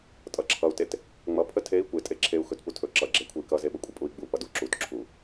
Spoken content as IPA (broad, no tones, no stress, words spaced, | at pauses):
tʼʌǁʰʌu̯tet | ŋ͡mʌpʰə tʰei̯ kʷetʼe ǁʰeu̯ xɵtputʰɵ ǁʌɡ͡ǁekʷʰəi̯ kʌzeɓəkʷʼə pʼui̯ɡ͡bupʌ duǁutǁʰu